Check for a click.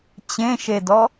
absent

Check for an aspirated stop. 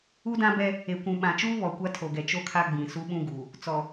present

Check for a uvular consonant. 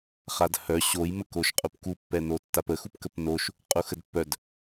present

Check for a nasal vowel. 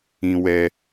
present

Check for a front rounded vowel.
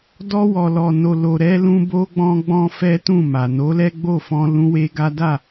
absent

